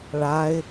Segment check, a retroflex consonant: present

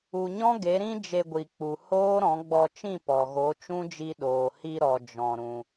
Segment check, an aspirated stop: absent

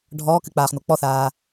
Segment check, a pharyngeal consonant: absent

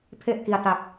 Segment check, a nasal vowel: absent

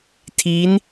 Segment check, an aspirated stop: present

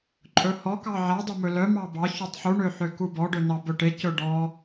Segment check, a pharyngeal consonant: present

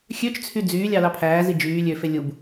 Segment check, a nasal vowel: absent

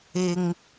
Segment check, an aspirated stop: absent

